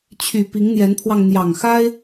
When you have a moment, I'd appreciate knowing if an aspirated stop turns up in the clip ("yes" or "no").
yes